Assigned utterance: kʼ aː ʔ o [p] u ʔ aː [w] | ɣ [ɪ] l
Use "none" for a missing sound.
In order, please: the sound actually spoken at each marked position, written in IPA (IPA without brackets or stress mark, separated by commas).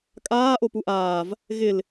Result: p, v, ɪ